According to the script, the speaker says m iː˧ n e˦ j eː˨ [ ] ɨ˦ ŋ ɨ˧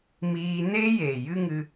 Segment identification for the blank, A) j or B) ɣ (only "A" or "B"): A